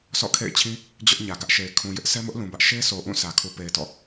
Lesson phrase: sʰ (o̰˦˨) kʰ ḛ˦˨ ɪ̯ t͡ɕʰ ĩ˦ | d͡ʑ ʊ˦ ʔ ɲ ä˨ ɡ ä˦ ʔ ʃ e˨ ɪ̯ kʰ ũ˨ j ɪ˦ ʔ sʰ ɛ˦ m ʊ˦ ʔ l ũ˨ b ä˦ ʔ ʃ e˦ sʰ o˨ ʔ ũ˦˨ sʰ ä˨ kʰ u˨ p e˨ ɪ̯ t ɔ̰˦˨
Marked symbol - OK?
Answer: no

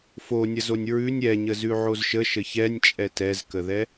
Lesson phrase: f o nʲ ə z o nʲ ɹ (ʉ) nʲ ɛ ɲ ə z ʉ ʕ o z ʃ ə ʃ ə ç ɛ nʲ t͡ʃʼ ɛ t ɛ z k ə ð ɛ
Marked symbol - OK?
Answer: yes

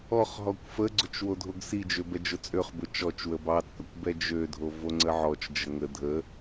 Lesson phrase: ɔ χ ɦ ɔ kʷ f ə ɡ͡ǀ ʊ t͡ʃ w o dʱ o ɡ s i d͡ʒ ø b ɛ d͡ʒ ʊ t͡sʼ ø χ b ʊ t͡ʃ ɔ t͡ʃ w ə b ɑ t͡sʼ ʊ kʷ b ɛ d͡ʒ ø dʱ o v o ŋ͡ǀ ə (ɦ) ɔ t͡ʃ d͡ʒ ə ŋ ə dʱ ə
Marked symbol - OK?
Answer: no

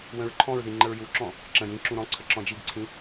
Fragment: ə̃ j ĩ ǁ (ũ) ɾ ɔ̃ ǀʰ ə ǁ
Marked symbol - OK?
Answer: yes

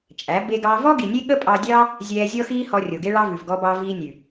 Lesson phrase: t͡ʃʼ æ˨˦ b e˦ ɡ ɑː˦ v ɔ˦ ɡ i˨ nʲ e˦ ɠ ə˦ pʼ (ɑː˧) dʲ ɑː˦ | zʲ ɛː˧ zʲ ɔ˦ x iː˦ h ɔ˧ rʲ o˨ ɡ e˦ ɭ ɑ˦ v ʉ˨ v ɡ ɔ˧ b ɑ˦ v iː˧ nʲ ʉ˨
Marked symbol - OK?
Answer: no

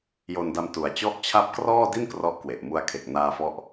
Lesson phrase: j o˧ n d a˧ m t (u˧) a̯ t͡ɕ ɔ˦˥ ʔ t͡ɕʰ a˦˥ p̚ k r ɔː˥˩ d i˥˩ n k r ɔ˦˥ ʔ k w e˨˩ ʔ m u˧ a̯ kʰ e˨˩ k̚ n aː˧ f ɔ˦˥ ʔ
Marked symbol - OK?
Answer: no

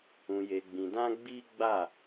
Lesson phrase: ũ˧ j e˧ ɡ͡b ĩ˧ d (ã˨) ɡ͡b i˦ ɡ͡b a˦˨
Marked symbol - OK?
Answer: no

